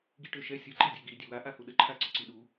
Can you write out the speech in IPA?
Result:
ɡ i ʈ ø ʃ ɛ sʲ ə ǃ i dʲ ɛ ɡ i dʲ ø w a ʔ a h u ɗ ə ǃʰ a ǀ ə ǀ i ɗ u

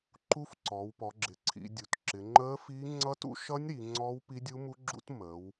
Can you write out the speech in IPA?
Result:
ǃ u˦˥ f ǀ ɔː˩˧ w p ɔ˩˧ ɡ͡ǁ ɪ˩˧ ǀʰ ḭ˩˧ dʲ u˩˧ t ǁ ɪ˩˧ ŋ͡ǃ əː˦˥ f i˦˥ ŋ͡ǀ ʌ˦˥ t ṵ˦˥ ʃ ʌ˦˥ nʲ ɾ i˩˧ ŋ͡ǀ ɔː˦˥ w p i˦˥ dʲ u˦˥ m u˦˥ ɡ͡ǁ ṵ˦˥ t m əː˩˧ w

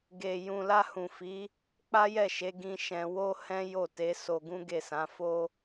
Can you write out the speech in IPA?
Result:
ɡ e˨ j ũ˨ l a˧ h ũ˨ f i˨˦ | k͡p a˦ j ɛ˦˨ ʃ e˨˦ ɡ ĩ˧ ʃ ɛ̃˧ w o˦ h ɛ̃˦ j o˦˨ t e˨˦ s o˧ ɡ ũ˦ ɡ e˦˨ s ã˨˦ f o˦

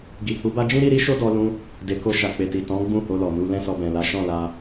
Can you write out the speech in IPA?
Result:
ɡ i˨ h u˨˦ b a˦ d͡ʒ ĩ˦ ɾ i˦ ɾ i˦ ʃ o˦ d ɔ˧ l ũ˧ | d e˨ k o˧ ʃ a˨ k͡p e˨ t i˨ t ɔ̃˨˦ ɡ͡b ũ˦˨ h o˧ l ɔ˨ n u˧ l ɛ̃˦ s ɔ˧ b ɛ̃˨ l a˨˦ ʃ ɔ̃˦˨ l a˧

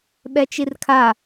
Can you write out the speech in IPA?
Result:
ɓ ɛ t͡ʃ i r kʰ a

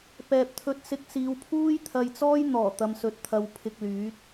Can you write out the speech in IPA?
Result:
p ɛː˨ p̚ t̪ʰ ɵ˧ t̚ s ɪ˧ k̚ s iː˨˧ w pʰ uː˥ j t̪ʰ ɐ˧ j t͡s ɔː˥ j n̪ ɔː˨˩ t̪ ɐ˧ m s ɵ˧ t̚ t̪ʰ ɐ˧ w pʰ ɪ˧ k̚ l yː˨˥ t̚

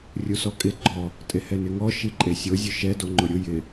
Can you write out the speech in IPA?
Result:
rʲ u s ɔ kʼ ɪ ɡ͡ǃ ɔ | tʼ e h ɛ n ɪ ŋ ɔ ʃ i ǃʼ e sʲ o zʲ ʊ ʃ ɛ d o ŋ͡ǃ ʊ ɾʲ ʊ j ɪ

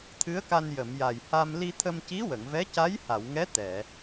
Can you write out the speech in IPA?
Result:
t̪ʰ ɨ˧˥ ə̯ k a˧ n j ə˨˩˨ m j a˨˩ j h a˧ m l i˧ t̪ʰ ə˧ m c i˧˥ w ə˨˩˨ ŋ v ɛ˧˥ c a˧˥ j h a˨˩˨ w ŋ ɛ˧˥ t̪ ɛ˨˩˨

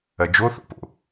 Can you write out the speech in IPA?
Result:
ɐ d͡ʒ o θ o̰ p o̰

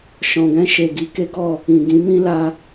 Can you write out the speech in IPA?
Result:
ʃ ɔ̃˨ ɡ ɛ̃˧ ʃ e˨ ɡ i˧ k e˦ ɡ ɔ˦˨ | ĩ˨ ɡ ĩ˨˦ m ĩ˦ l a˧

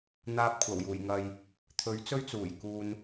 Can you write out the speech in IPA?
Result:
n̪ aː˧ p̚ kʷʰ ɐ˨˩ w j uː˨˩ j ŋ ɐ˨ j | t̪ʰ ɵ˨˥ ɥ t͡s ɵ˥ ɥ t͡s uː˨˩ j k uː˨ n

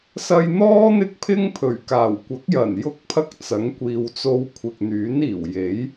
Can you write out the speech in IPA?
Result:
s ɐ˧ j n̪ ɔː˥ n̪ ɪ˥ k̚ pʰ ɪ˥ ŋ pʰ ɵ˨˩ ɥ k aː˨˩ w kʷ ɐ˨˥ k̚ j ɐ˨˩ n j ʊ˥ k̚ pʰ ɐ˥ k̚ t͡s ɐ˨˥ ŋ kʷ iː˨ w t͡s o˧ w kʷʰ ɪ˨ k̚ n̪ yː˨˥ n iː˨˩ w j e˨˥ j

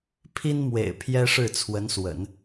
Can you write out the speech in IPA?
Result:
pʰ i˥ n m w ḛ˨˩ ɪ̯ pʰ j ɛ˥ ʂ ɻ̩˥˩ t͡sʰ w ə˧˥ n s w ə̰˨˩˦ n

